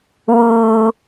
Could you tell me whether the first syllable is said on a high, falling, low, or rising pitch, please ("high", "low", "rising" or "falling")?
low